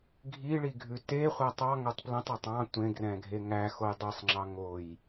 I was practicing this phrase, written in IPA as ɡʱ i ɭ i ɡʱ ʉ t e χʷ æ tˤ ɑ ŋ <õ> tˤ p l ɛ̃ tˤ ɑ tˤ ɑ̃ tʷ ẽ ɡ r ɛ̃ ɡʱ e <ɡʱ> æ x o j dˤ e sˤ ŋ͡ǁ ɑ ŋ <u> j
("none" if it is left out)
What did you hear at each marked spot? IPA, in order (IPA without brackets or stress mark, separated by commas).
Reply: o, ŋ, o